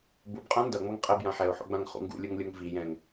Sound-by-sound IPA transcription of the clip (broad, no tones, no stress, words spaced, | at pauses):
bubqʼã ndʌŋ͡mʌŋ qʼɛbjã ħɛʊ̯ħo̰ɡ͡bãŋχṵ ŋɡṵlʲuŋlʲoŋ vi jɛ̃ŋ